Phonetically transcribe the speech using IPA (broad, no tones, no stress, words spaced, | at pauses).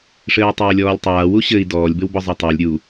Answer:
ʂɘːwtˤɘːlʲɔːlʲtˤaː wuɕɘi̯ dɔːlʲ bɘwbɔzˤetˤalʲ ɾʲu